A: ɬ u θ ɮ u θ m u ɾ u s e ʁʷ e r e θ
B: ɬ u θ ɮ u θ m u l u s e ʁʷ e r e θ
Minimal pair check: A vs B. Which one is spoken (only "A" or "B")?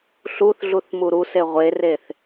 A